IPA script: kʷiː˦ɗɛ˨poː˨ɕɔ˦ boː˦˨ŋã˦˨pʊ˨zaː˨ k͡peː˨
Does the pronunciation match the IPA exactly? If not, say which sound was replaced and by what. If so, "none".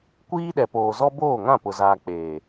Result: ɕ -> z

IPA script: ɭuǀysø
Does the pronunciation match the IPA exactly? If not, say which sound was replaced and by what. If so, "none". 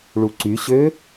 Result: s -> ɕ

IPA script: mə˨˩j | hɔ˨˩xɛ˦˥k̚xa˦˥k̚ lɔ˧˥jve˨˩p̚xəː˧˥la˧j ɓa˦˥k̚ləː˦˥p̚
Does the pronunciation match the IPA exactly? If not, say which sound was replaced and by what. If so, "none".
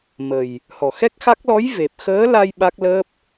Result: none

